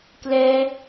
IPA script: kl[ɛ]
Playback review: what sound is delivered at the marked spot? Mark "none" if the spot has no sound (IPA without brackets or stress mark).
ɛ